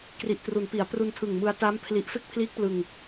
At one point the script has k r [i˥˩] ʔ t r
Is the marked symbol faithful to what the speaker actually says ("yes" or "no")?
no